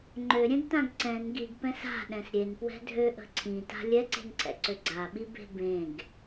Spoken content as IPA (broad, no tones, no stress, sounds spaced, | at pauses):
ŋ͡ǃ ø ɾʲ ɛ̃ ɡ t ã ɡ ǀ ɛ̃ n ɡ i ɡ p ɛ̃ s a̤ ɗ ɛ̃ s ɾʲ e n p w ɛ̤ dʱ ø ʔ ə̤ ǀʰ ĩ t a̤ lʲ ɛ ǀ e̤ n ǀʰ ɛ̰ ǀ ø ɡ͡ǀ a ɓ i b e̤ b ẽ ɡ